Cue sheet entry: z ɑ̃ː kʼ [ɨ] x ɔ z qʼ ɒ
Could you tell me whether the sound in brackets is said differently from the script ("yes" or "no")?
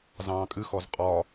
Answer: no